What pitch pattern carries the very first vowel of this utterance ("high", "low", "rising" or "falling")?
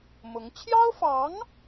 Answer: rising